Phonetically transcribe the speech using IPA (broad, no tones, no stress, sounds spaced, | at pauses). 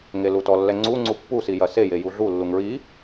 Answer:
ŋ e l u t ɔ lː ɛ ŋ͡ǀ u ŋ͡ǀ u pː u s i j ɐ s e j e j u ɮ u lː u ŋ ɹ i